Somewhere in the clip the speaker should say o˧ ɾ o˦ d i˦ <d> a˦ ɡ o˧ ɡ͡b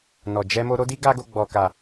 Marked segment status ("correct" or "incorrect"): incorrect